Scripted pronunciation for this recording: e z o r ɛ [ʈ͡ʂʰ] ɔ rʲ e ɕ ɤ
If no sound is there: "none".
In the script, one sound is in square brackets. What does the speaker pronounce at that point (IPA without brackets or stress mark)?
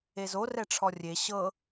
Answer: ʈ͡ʂʰ